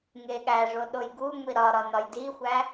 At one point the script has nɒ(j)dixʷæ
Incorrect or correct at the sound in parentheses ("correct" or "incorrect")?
correct